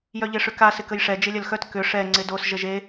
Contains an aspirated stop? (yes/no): no